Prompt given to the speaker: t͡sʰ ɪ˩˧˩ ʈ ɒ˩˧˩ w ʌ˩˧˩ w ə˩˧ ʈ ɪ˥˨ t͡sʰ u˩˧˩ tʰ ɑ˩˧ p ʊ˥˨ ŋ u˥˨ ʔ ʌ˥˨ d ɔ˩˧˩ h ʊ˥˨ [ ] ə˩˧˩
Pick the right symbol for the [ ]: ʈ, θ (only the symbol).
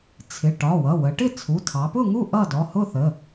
θ